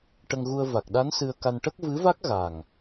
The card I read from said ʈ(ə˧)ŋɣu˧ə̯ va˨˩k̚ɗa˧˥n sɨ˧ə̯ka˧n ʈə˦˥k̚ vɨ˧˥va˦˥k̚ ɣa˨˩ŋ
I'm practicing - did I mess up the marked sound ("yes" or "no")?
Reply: no